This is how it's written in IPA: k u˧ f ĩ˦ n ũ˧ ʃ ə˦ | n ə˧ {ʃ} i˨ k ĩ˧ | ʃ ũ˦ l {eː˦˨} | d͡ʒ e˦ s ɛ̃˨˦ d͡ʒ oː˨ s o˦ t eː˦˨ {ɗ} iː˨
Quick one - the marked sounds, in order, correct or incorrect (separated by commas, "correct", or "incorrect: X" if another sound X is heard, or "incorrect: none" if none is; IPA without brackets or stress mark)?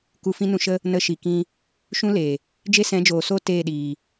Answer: correct, incorrect: eː˨, correct